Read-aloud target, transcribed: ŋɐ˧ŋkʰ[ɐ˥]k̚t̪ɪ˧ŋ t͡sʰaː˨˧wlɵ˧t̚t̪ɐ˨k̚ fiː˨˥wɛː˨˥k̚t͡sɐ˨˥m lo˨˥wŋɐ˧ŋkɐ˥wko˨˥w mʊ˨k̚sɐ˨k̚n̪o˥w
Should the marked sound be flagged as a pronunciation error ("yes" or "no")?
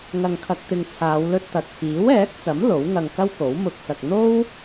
yes